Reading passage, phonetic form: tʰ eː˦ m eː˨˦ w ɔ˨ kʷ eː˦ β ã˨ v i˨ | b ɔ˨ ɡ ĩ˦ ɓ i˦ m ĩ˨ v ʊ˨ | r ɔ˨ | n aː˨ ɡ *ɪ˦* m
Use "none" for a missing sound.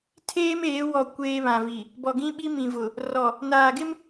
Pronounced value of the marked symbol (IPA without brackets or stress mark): ɪ˦